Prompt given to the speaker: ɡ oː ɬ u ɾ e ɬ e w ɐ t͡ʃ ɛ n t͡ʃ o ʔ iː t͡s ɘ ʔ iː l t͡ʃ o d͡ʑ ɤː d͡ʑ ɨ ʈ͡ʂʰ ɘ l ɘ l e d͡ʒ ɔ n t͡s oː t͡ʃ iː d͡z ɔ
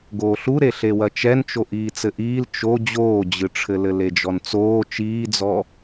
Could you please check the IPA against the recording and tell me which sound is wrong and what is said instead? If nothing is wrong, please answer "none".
ɤː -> oː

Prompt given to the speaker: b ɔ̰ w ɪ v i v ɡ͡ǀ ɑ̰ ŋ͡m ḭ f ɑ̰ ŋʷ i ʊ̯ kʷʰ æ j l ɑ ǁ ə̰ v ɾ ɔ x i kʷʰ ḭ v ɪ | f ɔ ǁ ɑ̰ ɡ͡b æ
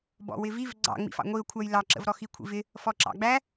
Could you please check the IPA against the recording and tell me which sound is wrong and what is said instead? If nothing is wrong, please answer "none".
none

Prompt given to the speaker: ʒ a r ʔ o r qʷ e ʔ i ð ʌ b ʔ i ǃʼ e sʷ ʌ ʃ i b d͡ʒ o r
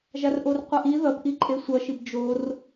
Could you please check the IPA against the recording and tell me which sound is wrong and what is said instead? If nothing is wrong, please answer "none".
none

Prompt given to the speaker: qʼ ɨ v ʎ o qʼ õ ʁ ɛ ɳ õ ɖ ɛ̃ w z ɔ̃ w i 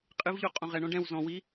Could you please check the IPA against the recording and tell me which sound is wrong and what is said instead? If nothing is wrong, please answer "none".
none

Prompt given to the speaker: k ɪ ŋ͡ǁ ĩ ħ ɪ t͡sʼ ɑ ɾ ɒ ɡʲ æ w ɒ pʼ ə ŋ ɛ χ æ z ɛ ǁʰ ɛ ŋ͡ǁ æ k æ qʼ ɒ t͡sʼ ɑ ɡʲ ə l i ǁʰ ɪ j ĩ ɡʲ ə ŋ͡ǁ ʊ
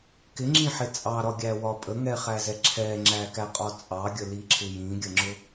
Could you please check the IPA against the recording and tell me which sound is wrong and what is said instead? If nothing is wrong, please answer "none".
none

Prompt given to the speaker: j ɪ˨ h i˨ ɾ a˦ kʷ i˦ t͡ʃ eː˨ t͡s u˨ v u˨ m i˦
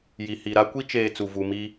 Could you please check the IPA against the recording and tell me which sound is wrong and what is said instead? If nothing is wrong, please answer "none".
ɪ˨ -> i˨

